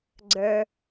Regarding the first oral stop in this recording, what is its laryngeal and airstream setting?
click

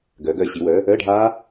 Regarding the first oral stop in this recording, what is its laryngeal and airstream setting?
plain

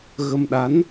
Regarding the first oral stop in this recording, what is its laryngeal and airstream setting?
implosive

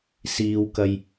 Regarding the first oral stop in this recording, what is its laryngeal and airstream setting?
plain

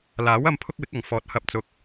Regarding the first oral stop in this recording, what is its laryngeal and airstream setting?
aspirated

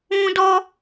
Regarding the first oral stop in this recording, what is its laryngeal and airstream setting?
plain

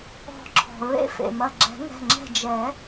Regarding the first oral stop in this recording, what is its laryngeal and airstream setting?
click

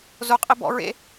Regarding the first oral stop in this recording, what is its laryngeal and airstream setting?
ejective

